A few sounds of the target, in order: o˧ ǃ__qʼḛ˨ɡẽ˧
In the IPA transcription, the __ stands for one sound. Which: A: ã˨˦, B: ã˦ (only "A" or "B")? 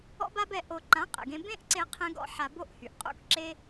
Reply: A